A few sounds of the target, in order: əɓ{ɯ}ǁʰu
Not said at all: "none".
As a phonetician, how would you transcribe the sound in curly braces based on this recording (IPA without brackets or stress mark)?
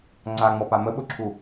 ʊ